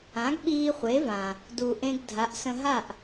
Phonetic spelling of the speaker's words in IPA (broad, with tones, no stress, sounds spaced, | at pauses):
ã˩˥ ɡ ɓ iː˧ χʷ e˩˥ v ã˩ | d u˩ ʔ ẽ˧ ɡ dʱ a˩˥ ʔ s ə̃˧ ɦ a˥˩ ʔ